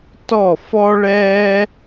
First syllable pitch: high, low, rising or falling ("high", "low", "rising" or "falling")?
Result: falling